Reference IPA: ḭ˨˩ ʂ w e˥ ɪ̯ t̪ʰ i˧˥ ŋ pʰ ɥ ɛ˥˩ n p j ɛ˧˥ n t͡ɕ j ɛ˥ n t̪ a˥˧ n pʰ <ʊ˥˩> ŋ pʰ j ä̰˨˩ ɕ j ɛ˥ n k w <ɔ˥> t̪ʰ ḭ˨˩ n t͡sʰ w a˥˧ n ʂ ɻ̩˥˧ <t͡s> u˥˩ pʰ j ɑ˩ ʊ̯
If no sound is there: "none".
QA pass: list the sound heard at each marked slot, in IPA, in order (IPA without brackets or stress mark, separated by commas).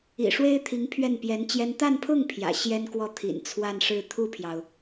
ʊ˥˩, ɔ˥˩, t̪ʰ